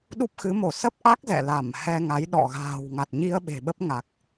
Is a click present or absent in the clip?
absent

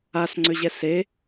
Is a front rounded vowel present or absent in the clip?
present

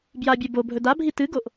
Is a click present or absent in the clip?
absent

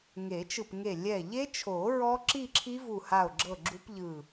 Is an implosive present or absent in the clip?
absent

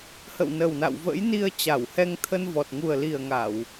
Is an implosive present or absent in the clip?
absent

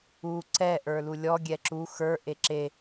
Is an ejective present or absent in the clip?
absent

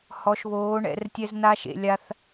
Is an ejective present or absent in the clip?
absent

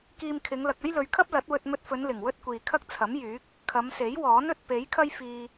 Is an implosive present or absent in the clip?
absent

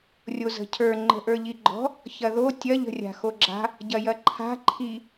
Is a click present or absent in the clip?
present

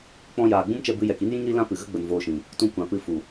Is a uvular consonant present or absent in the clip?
absent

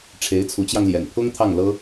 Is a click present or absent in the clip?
absent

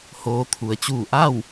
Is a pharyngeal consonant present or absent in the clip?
absent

